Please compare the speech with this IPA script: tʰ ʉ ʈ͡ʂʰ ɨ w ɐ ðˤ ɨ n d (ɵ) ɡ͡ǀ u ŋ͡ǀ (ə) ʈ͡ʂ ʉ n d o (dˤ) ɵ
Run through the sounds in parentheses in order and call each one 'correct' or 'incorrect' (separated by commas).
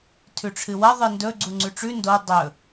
correct, incorrect, correct